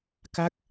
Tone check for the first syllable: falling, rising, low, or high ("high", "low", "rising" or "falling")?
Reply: falling